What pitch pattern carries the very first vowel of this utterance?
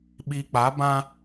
low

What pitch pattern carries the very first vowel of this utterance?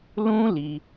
high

